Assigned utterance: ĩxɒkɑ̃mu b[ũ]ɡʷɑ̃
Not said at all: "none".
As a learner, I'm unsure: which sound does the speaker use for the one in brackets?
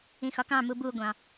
u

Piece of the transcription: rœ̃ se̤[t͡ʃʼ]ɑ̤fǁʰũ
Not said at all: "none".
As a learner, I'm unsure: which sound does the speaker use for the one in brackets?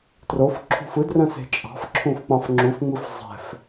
t͡ʃʼ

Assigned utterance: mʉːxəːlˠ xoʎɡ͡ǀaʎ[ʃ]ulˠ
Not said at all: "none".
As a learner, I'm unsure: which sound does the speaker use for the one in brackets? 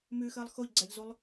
z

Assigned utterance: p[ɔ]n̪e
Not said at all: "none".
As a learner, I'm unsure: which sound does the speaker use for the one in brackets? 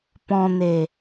ɔ̃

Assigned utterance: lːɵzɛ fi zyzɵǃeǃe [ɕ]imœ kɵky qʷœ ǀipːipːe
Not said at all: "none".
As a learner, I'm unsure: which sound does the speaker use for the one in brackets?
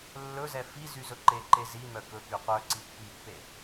z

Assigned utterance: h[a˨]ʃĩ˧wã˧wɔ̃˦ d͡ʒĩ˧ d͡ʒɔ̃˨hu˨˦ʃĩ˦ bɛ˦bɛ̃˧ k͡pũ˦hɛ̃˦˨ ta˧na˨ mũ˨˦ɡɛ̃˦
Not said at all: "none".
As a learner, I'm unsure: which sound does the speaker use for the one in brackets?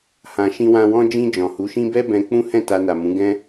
ã˨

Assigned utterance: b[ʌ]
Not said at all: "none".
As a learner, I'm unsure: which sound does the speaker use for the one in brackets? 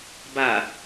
a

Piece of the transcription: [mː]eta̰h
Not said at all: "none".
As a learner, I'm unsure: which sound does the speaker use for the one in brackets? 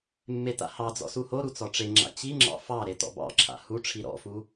mː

